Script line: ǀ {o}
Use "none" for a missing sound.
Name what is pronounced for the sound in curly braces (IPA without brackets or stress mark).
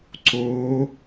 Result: o